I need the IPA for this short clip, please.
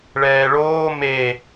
ɭɛːɭoː me

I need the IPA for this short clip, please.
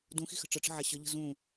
dũxi̤xə̤ ʈ͡ʂəʈ͡ʂə̤ʕa ɕəʎə̤ zũ

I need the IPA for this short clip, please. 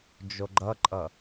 d͡ʒoɡ͡ǃʌǃʼʌ

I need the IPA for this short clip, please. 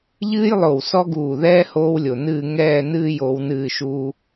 ʎɨː˥jlˠo˧˩w sɔ˥ɡuː˧˩ðɛː˥ hoː˥wlʲo˧˩nɨː˥˧ ŋɛː˥˧nɨː˥˧j o˩˧wnɨː˧˩ʃuː˧

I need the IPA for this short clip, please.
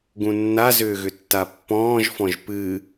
ɡũnːazʏːɣʏ tːapːɔ̃ːʒfɔ̃ʒ pɨ

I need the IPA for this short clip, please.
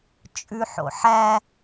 t͡ʃʼʉħo̰ħæ

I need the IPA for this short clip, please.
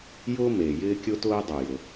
jʊː˥ meː˩ jɪː˥kʲʊ˥tʊː˥ dˤʊ˩ jʊ˩

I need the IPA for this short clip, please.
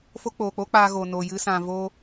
fo˦ k͡poː˨k͡po˦k͡paː˧ɣo˨ no˨jɨ˧sã˨ voː˧

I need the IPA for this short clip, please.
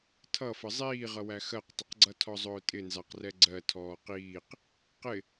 tʰʌfə zˤiːʁʌwæ xɜqtˤəqɡ͡ǀʌtʰɔ zˤʊːtʼɪnzɑqrɛ ɡ͡ǀɜ tʰɔːqiːq | qɪ

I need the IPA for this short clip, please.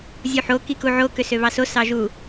zʲuħo kikuʕo køsøβɑso sɑʒu

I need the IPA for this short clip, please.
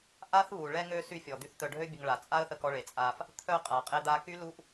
ʔa˦θβu˨ ɭɛ˧ŋø˧ sy˧fʲɔ˨d̪y˧θ t̪œ˨ɖʱø˧bʲə˨ŋ ɭa˨ t͡sʼa˦ə̯θə˧k ɔ˧ɭe˨t͡sʼa˧f | t̪ʰœ˧ qʼa˨qʼe˧d̪a˧ ky˦lu˦ʔ

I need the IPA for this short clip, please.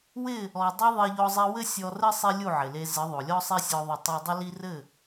wɪ˦˨ | ɔ˨dˤi˧ ðˤe˧ʎɔ˧zˤi˧ wɘ˦sʲɔ˧rɘ˦ sˤi˦lʲu˦˨ʕɪ˨le˧ zɪ˨˦ðˤo˨lʲɔ˦sˤe˦ sʲɔ˧ðˤɘ˧ tˤo˧dˤɪ˦li˦ rɘ˦˨

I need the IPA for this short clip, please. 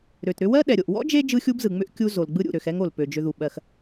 ɾø˩tɾʏ˥ wɜ˥ ɗɛ˩ɾʲo˩ʔ wɔ̰˥d͡ʒe˦ d͡ʒɯ˥xʲu˥bzɯ˩ŋ͡mʏ˥ʔ kʲu˥zo˩lɡ͡bɯ˥ɾʲṵ˩ ɾø˨xɛ˥ŋo˩l pø˩d͡ʒʏ˨ðu˩ɓɜ˨x

